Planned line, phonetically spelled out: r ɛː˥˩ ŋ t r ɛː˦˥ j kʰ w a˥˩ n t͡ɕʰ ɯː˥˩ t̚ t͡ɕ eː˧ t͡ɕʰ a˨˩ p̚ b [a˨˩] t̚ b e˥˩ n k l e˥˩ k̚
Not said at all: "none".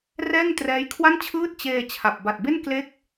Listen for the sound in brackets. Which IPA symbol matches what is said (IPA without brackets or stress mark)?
a˨˩